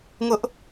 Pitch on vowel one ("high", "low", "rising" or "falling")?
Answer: high